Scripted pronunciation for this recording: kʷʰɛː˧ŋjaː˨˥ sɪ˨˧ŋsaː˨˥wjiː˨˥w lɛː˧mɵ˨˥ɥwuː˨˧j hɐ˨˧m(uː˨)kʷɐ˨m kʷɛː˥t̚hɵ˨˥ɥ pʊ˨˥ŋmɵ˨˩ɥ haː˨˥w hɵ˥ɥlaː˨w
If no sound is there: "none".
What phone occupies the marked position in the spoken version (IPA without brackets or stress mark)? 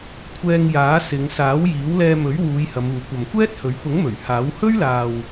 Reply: uː˨